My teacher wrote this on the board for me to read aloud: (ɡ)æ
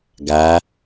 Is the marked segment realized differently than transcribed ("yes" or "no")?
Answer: no